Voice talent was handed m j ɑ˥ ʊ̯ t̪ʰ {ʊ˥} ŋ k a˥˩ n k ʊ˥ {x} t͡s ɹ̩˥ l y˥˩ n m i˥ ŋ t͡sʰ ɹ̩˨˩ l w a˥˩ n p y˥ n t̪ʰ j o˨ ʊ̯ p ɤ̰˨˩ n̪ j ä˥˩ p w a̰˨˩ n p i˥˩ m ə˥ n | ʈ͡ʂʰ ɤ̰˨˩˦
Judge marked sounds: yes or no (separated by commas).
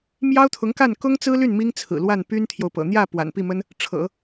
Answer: no, no